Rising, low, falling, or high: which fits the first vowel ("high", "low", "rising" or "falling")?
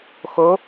rising